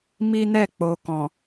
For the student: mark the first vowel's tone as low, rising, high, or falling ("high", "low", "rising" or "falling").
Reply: high